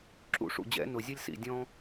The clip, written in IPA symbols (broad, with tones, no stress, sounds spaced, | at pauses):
ǁ ṵ˨˩ ʂ ṵ˨˩ d͡ʑ ɛ̰˨˩˦ n ʊ˨˩ zʲ ʌ˦ lʲ s ḭ˨˩ dʲ ɔ̃˦